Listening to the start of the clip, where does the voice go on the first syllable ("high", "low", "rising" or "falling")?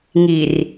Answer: low